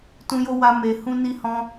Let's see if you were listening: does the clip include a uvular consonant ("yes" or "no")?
no